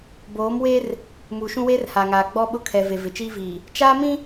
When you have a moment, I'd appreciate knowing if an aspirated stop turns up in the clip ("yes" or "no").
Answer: yes